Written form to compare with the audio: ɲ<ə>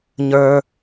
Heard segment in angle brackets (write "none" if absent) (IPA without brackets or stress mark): ə˞